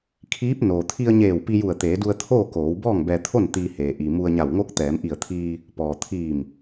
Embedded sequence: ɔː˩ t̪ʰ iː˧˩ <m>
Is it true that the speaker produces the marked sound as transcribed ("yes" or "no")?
yes